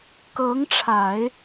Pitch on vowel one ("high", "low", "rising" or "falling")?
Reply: rising